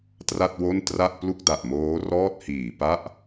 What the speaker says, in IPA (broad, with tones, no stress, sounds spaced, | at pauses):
t r a˥˩ t̚ w o˥˩ n t r a˥˩ ʔ p l u˥˩ k̚ d a˨˩ ʔ m oː˦˥ r ɔː˥˩ t̚ h iː˨˩ p a˥˩ ʔ